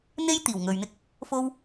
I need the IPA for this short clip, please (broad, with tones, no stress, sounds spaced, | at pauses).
n̪ e˥ j t̪ iː˨˩ w ŋ ɵ˨ ɥ n̪ ɪ˥ k̚ | f o˥ w